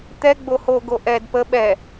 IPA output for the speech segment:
t̪ ɛ ɡ͡b o h o ɡ o ʔ ɛ d p ə ɓ ɛ

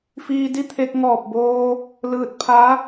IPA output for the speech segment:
f iː˧ d i˥˨ t̪ʰ e˧ k̚ ŋ ɔː˧˩ p̚ b oː˧ | l ɯː˧ t̚ pʰ a˧˥

